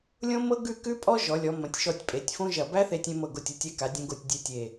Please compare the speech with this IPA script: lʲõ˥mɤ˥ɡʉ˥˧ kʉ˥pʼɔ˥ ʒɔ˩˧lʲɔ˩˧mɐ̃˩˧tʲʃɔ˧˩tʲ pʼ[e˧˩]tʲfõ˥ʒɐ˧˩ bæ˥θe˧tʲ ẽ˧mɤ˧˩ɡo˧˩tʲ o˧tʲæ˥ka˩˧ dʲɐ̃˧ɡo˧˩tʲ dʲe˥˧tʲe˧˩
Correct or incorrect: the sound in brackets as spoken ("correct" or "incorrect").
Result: incorrect